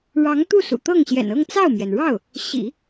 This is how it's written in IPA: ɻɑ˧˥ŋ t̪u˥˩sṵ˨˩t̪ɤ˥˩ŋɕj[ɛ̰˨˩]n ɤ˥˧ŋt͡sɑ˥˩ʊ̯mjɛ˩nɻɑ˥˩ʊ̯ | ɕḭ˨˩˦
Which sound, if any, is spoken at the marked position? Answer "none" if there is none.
ɛ̰˨˩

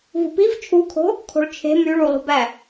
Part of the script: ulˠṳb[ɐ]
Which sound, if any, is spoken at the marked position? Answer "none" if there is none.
æ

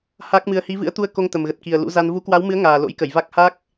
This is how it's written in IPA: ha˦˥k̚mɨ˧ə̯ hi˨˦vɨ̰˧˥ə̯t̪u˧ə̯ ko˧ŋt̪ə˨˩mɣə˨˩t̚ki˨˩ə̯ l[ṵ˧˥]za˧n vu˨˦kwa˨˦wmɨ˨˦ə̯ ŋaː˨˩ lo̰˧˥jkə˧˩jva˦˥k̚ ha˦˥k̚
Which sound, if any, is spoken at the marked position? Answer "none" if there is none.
ṵ˧˥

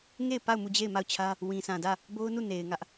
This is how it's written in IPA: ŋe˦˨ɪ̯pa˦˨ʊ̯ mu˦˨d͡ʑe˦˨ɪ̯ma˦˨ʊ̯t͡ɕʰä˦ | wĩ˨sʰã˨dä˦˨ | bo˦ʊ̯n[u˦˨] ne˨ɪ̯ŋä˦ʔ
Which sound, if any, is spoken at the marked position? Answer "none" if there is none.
u˦˨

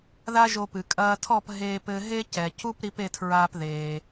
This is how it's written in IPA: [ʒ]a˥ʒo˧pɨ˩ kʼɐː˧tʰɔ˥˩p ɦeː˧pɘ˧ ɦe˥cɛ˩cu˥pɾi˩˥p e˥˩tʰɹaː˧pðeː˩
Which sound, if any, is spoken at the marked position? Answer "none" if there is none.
ð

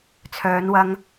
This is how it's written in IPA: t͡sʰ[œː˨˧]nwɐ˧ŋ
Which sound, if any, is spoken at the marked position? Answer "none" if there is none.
œː˨˧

